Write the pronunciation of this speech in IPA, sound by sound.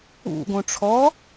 ṵ ɡ õ ʈ͡ʂʰ ɔ

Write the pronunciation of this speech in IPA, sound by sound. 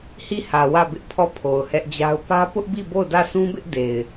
h i˦˨ h ä˨ w ä˦˨ b ɪ˦ ʔ pʰ ɔ˦˨ pʰ o˨ ʊ̯ h ɛ˦ ʔ d͡ʑ a˦ ʊ̯ p ä˦ p ʊ˦ ʔ b i˦˨ b o˦˨ ʊ̯ d ä˦˨ sʰ ũ˦ b ɪ˦ ʔ d e˨ ɪ̯

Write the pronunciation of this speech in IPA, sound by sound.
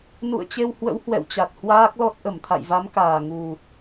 n ṵ˧˨ ə̯ t͡ɕ e˧ w h w ə̰˧˥ w h w ɛ̰˧˨ w t͡ɕ a˨˩ t̚ h w aː˦˥ k̚ l ɔ˦˥ t̚ ʔ ə˧˩ m t̪ʰ a̰˧˨ j v a˨˦ m k aː˨˩ ŋ u˨˩

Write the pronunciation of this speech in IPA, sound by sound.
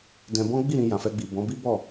d ɛ̃˧ b ɔ̃˦ ɡ͡b i˦˨ ɾ ĩ˧ j ã˨ f ɛ˧ ɡ͡b i˨ b ɔ̃˨˦ b i˦ b ɔ˦˨

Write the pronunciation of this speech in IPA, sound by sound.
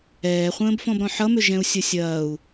ɛː χʷ ə̃ː b f ɔ̃ b ɾ ɔ̃ ħ ʌ m ʏ ʒ ɛ̃ u̯ sʲ ɐ sʲ ɐː u̯

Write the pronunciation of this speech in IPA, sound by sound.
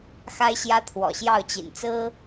x a˦ ɪ̯ ɕ j ä˦ t̪ʰ w ɔ̰˨˩ ɕ j ɑ˥˨ ʊ̯ t͡ɕ ḭ˨˩ n t͡s ɹ̩˦

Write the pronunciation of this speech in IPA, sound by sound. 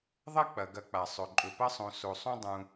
ðˤ ɐ˥ k͡p ɐ˩ ɡ ɐ˨ k͡p a˩ sˤ ɵ˩ ǃʼ ɵ˩ p ɐ˥ sˤ õ˨ s o˩ sˤ ũ˦ dˤ ũ˨

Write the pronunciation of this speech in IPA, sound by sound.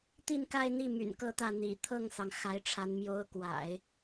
t̪ i˥˧ n k a˥˧ ɪ̯ n̪ i˥˩ m y̰˨˩ n k ɤ˥˧ t̪ ä˥˩ n̪ ḭ˨˩ t̪ʰ ɤ˥˩ ŋ s ɑ˩ ŋ x a˧˥ ɪ̯ ʈ͡ʂʰ a˧˥ n m j o˧˥ ʊ̯ k w a̰˨˩˦ ɪ̯

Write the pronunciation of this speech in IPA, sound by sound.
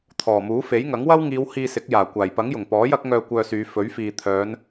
t̪ʰ ɔː˨˩ m uː˨˥ f e˨˥ j ŋ ɐ˨˥ ŋ w ɐ˥ w ŋ iː˨˧ w h iː˧ s ɪ˨˥ k̚ j aː˨˩ kʷ aː˨˩ j p ɐ˨˥ ŋ j ʊ˨˩ ŋ p ɔː˨˥ j ɐ˧ k̚ ŋ œː˨ kʷ œː˧ s yː˨˧ f ɵ˨˥ ɥ f iː˨ t̪ʰ œː˨˧ n

